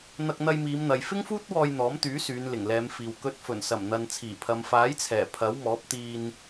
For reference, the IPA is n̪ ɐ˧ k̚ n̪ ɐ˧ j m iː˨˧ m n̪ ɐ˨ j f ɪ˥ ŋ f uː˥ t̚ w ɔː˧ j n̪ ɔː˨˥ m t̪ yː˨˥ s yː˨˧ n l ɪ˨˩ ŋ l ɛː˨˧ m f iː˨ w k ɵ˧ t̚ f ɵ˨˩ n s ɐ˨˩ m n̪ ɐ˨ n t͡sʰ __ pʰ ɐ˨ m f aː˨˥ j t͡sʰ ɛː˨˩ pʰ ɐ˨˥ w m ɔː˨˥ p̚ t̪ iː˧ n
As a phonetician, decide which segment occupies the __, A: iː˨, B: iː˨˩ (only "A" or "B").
B